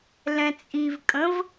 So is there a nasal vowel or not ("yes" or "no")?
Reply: yes